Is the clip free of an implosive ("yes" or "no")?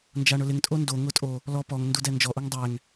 yes